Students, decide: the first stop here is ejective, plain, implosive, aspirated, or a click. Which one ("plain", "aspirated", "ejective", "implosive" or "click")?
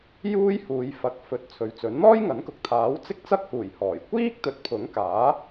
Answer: plain